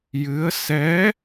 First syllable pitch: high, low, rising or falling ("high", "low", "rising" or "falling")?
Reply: rising